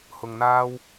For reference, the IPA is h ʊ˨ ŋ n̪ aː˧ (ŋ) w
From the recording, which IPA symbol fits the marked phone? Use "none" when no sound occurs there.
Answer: none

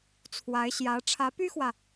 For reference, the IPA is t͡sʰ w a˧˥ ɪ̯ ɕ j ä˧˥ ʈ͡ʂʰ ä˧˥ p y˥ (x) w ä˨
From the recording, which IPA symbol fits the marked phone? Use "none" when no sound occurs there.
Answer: x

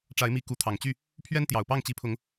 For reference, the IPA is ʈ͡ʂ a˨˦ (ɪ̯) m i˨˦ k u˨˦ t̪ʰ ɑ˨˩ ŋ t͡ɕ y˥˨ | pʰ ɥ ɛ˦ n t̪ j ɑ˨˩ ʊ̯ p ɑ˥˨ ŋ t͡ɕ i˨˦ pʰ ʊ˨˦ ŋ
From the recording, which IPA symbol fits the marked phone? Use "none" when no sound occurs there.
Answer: ɪ̯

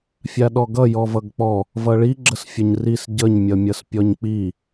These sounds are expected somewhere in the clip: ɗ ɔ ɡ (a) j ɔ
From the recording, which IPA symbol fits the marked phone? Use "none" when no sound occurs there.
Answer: ʌ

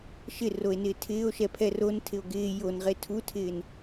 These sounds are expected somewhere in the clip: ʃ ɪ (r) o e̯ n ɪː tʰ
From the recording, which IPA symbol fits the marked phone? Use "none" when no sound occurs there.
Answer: r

